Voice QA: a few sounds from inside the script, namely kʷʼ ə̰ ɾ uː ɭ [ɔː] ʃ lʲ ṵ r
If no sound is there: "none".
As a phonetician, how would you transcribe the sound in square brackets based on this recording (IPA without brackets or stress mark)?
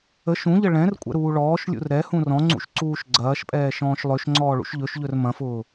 ɔː